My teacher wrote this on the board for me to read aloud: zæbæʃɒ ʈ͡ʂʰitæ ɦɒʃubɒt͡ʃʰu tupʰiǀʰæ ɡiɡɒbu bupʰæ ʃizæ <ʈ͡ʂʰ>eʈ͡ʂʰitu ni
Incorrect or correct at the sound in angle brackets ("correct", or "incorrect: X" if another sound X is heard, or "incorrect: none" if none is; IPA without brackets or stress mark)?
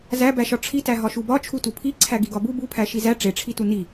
incorrect: ʈ͡ʂ